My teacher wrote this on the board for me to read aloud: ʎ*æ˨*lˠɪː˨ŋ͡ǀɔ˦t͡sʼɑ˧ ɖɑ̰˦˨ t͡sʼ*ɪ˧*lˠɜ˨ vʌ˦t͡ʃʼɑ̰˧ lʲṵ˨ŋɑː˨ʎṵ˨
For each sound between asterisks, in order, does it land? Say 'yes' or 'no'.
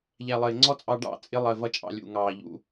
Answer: yes, yes

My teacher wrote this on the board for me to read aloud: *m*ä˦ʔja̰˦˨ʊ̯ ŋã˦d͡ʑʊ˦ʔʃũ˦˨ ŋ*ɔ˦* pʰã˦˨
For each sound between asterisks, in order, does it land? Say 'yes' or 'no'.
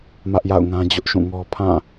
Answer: yes, yes

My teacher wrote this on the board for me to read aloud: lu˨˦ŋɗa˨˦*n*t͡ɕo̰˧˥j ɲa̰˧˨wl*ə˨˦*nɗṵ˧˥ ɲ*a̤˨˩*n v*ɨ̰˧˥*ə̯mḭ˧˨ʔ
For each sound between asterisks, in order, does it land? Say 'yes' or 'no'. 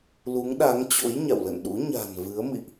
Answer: no, no, yes, no

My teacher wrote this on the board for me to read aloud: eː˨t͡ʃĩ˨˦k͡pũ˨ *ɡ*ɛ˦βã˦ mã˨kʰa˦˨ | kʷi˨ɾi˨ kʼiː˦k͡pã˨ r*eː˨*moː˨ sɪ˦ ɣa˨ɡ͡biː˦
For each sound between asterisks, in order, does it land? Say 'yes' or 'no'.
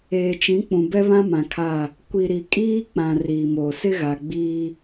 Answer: no, no

